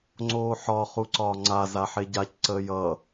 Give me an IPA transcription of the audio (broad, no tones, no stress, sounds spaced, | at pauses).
ŋ͡ǀ oː ħ ɒ χ u ǀ ɒː ŋ͡ǀ a z a ħ e ɟ a c ǀ əː j ʌ